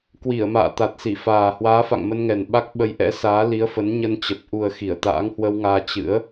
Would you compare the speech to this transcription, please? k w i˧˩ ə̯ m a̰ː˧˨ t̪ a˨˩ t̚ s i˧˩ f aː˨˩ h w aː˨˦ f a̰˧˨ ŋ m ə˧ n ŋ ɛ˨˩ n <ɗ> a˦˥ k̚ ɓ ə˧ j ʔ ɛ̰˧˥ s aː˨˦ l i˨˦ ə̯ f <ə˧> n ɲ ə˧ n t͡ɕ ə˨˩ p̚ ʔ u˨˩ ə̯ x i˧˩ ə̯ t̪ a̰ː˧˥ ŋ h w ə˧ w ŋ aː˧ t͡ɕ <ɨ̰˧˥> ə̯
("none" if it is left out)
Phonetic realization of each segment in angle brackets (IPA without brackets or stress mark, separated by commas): ɓ, ə˨˦, ɨ̰˧˥